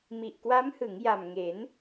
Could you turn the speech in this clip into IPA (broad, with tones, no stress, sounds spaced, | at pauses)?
m i˨˩ ʔ k w a˦˥ m h ɯ˩˦ ŋ j a˨˩ m ŋ e˩˦ n